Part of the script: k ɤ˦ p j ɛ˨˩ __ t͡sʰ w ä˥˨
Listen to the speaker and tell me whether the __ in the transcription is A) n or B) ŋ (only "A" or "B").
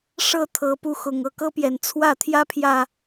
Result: A